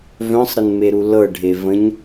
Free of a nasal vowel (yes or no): no